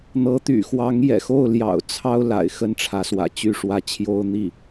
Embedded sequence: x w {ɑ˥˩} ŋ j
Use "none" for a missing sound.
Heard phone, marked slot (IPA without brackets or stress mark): ɑ˧˥